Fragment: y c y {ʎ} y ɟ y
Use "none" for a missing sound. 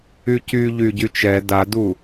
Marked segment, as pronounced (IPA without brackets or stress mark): ʎ